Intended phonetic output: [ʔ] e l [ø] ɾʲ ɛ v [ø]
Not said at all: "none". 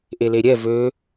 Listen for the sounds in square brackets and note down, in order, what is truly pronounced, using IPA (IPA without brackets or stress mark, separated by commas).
ʔ, e, ø